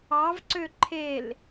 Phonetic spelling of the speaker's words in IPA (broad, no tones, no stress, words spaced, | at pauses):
ɑvǀø ǃʰel